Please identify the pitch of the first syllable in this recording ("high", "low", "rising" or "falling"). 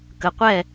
low